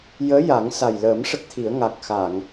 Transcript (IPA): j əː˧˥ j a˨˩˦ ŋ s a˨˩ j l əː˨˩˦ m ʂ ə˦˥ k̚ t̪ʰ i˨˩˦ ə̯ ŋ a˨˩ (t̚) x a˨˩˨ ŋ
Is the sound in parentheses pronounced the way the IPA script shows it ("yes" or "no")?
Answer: no